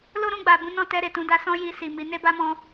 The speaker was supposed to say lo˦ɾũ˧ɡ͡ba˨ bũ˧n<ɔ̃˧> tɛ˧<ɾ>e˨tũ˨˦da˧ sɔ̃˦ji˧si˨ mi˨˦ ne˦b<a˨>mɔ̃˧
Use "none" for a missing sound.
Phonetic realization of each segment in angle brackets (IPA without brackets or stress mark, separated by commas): ɔ̃˧, ɾ, a˦